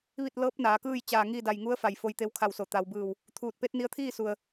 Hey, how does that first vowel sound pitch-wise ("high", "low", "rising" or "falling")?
falling